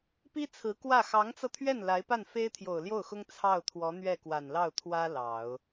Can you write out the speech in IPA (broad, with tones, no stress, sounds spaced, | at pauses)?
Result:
p i˥ t͡sʰ ɹ̩˧˥ k w ä˥˩ x ɑ˧˥ ŋ t͡s ɤ˧ t̪ʰ ɥ ɛ˥˩ n l a˧˥ ɪ̯ p a˥˩ n f e˥ ɪ̯ t̪ʰ j o˨˩ ʊ̯ l j o˥˩ ʊ̯ x ʊ˥ ŋ t͡sʰ ɑ˥˩ ʊ̯ t̪ʰ w ɔ˧˥ n̪ ɥ ɛ˥˩ k w a˨˩ n l ɑ˥˩ ʊ̯ t̪ʰ w ä˥ l ɑ˨˩˦ ʊ̯